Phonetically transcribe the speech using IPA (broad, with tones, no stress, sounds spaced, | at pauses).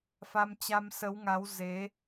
f a˧ m t͡ɕ a˧ m s ə˨˦ w ŋ a˨˦ w z e˨˦